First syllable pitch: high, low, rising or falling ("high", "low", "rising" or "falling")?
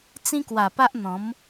high